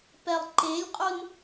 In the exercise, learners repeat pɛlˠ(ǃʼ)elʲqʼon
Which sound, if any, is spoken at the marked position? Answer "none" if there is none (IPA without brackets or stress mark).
ǃ